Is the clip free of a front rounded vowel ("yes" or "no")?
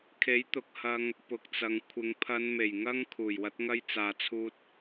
yes